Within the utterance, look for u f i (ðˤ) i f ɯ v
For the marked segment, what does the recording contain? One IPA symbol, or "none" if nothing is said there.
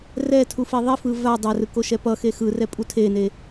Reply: ðˤ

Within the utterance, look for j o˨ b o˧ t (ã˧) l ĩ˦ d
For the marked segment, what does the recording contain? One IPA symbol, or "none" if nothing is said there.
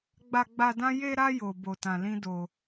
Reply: ã˧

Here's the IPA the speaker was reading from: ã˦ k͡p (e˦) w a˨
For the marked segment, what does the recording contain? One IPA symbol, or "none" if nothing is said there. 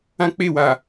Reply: e˦˨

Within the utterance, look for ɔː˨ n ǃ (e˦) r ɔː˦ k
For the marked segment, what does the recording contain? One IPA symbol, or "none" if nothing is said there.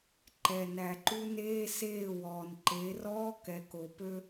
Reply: e˨˦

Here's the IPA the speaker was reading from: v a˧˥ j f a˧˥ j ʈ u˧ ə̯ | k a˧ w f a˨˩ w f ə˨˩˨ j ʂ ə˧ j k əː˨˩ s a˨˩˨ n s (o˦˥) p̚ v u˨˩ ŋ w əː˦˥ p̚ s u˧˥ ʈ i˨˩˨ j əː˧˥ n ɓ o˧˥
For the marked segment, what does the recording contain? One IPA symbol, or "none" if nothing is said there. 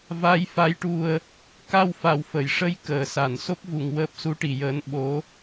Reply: o˦˥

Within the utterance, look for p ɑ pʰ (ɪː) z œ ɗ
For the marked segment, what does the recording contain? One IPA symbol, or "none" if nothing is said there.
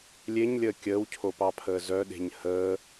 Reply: əː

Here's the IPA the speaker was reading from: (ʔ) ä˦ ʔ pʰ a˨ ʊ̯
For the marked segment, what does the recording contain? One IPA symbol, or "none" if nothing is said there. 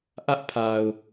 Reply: ʔ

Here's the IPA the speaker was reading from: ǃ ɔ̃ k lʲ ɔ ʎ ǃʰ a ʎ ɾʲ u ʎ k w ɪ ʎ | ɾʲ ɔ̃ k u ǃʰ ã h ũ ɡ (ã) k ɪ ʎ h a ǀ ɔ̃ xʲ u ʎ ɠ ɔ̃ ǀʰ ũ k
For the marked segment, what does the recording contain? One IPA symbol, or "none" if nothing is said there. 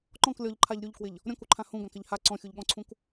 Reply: ã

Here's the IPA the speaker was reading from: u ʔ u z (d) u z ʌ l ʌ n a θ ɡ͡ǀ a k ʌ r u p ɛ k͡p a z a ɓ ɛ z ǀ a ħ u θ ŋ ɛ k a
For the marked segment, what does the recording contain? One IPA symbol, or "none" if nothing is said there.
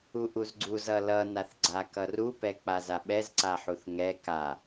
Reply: ɡ͡ǀ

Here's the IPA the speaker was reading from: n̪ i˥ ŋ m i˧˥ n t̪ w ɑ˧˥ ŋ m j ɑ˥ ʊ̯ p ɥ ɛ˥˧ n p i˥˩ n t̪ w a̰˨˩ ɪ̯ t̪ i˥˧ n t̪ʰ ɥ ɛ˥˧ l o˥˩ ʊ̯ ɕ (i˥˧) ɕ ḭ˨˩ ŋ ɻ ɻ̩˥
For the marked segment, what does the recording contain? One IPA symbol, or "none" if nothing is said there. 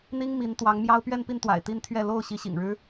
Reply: i˧˥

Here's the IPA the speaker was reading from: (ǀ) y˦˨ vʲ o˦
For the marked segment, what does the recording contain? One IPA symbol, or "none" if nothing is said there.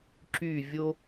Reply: ǁ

